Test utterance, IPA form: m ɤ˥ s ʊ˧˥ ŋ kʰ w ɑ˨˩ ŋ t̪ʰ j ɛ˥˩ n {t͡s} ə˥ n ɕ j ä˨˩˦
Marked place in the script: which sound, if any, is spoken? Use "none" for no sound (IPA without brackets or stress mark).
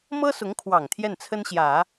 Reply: t͡sʰ